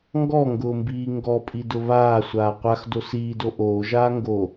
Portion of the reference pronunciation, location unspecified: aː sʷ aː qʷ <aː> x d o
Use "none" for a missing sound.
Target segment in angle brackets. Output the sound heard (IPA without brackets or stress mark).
a